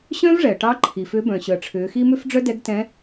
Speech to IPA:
ɕœ̃˥v ʐɛ˩ə̯ʈɑ˧˥ ǃʰi˩fʏ˧˥ bœ̃˩ɕœ˩ə̯ʈ͡ʂʰʏː˩˧xi˥ mʏ˥fɖ͡ʐœ˥dɛ˧˥ɡ tɛ̃˧˥

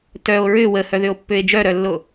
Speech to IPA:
tœo̯ ɹʏ wəhœðʏo̯pːʏe̯ d͡ʒœɾœlːo

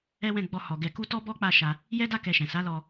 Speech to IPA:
ɛ˦wɛ̃˦˨ ɡ͡bɔ˧ hɔ˨ɡɛ˧ ku˦tɔ˦ bɔ˦k͡pa˦˨ ʃa˧ | jɛ˦da˦˨ kɛ˧ʃɛ̃˨ sa˨˦ lɔ˧

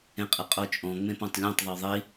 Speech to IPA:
ẽqʼɪqʼot͡ʃʼɔ̃ ŋ͡mẽpõtˤlʲẽtˤ ðˤoðˤi

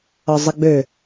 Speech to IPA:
ɒzˤəɡ͡bø

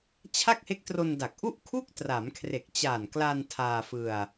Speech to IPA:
t͡ɕʰa˥˩k̚he˦˥k̚tro˧nda˨˩k̚ ʔu˥˩ʔkʰu˥˩k̚ tra˩˦mkʰre˨˩k̚t͡ɕaː˨˩nkla˧n tʰaː˧fɯ˧a̯

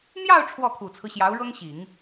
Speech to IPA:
n̪jɑ˥˧ʊ̯ ʈ͡ʂʰwɔ˥˩kʰu˨˩t͡sʰɹ̩˦ ɕjɑ˧˥ʊ̯ɻɤ˥ŋɕi˨˩˦ŋ

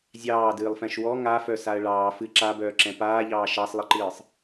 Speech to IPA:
zʲɑːdɨːlˠfɛ̃ʃ wɔ ŋafœsaə̯ ɭɑː fɨ ǁabœːǁɛ̃ paːʎɑː ʃɑsˤlˠɨǃɨːsˤ

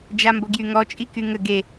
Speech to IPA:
d͡ʒamboɡjyŋɔ t͡ʃʼikyŋə ɡe

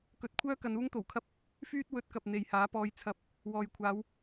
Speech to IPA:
kɵ˨˥t̚kʷʰœː˥ kɐ˨˧nuː˥ŋt̪o˨˩wkʰɐ˥p̚ | fyː˥t̚ wɵ˨˥t̚kɐ˨p̚ n̪e˨jhaː˨˥pɔː˧j t͡sʰɐ˨˥p̚ | wɔː˨j kʷʰaː˨˧w

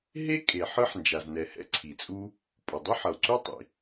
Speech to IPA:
ɦe˥ kʼe˩ ħɯ˥ħnd͡ʒa˩znɛ˩hɛ̰˥ ǀʰi˩t͡sʼu˥ | pʼo˩dˤɯ˥ħʌ˩o̯ǀu˥ tˤḭ˩

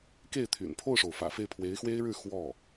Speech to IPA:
ke˥˩ɪ̯t̪ʰy̰˨˩n pʰo˥˩ʊ̯ʂo˩ʊ̯fä̰˨˩ fe˥˩ɪ̯pʰwe˧˥ɪ̯xwe˥ɪ̯ɻɻ̩˥˧ xwɔ˥˩

